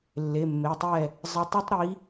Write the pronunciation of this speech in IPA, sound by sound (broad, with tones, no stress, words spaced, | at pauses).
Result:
lːe˩˧˩mːe˩˧˩tˤɛ˥˩ | zˤɘ˨˦tˤɘ˦tˤɾi˨˦